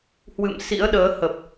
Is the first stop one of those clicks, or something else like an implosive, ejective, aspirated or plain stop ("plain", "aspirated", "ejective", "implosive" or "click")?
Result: implosive